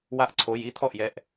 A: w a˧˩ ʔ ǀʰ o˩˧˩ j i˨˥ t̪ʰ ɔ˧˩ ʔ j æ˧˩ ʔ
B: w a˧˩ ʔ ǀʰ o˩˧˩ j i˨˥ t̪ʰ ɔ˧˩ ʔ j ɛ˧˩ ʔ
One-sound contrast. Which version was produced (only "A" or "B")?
B